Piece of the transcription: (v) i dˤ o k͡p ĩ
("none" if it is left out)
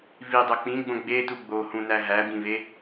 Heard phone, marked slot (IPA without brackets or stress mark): v